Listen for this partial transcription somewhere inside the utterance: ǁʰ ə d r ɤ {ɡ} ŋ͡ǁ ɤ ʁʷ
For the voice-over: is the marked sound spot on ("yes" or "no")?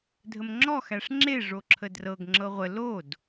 yes